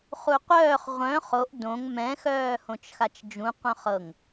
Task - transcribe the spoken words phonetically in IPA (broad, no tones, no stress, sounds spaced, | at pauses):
χ u qʷ œː χ ʁʷ œ̃ χ o ʔ d õ ŋ m ɛ̃ x œː h õ t͡ʃ x a t͡ʃ d͡ʒ ũ qʷ œ̃ χ ɤ ŋ